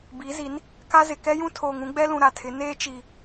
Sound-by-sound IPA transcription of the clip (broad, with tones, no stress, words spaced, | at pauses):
bi˨˦zi˨˦n | ka˦zɪ˨ kɛ˦jũ˦tʰoː˨ŋ ũ˦ɡ͡bɛ˦lũ˨ ɾa˨tʰɪ˨˦ neː˦t͡ʃi˨